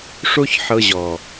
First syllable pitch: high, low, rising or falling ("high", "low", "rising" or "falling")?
high